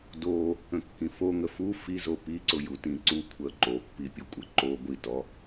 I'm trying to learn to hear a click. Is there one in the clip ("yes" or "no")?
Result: yes